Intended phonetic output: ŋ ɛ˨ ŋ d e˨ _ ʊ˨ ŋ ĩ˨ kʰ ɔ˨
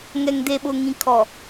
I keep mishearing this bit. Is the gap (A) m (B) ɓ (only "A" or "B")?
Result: B